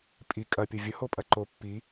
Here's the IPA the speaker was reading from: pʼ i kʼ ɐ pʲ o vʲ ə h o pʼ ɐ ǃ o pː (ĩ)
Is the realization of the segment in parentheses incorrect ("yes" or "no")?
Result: yes